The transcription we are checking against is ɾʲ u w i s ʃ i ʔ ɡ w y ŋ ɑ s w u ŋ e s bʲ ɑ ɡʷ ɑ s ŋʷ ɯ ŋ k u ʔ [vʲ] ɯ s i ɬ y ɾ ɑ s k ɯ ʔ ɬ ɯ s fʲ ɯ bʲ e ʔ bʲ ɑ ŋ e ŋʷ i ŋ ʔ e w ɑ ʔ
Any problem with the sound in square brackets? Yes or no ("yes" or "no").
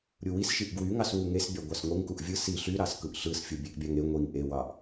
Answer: no